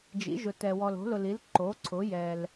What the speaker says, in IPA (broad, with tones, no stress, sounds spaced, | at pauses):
d͡ʒ ḭ˩˥ ʒ ʊ˨ t ɛ˨ w ɔ˨ l o̤˩˥ l ʊ˨ l i˩˥ l ǃ o˩˥ ǀʰ ʊ˩˥ j ɛ˨ l